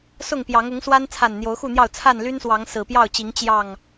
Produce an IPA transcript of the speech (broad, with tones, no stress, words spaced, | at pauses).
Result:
sʊ˥˨ŋpjɑ˨˦ŋ ʊ˨˦ŋswa˦n t͡sʰa˨˩nn̪jo˨˦ʊ̯xu˥˨n̪jɑ˥˨ʊ̯ t͡sʰa˥˨nly˦nswɑ˨˦ŋ sɹ̩˨˩pjɑ˥˨ʊ̯t͡ɕi˨˦ŋ t͡ɕjɑ˥˨ŋ